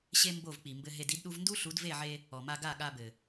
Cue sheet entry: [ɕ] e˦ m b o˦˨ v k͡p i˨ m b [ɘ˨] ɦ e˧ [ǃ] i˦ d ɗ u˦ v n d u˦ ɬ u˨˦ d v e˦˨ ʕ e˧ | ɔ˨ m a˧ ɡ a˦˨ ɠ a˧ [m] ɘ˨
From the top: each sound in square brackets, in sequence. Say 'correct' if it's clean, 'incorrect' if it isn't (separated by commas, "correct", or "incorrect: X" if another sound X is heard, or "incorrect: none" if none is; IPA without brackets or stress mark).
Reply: correct, incorrect: ɘ˧, incorrect: d, incorrect: b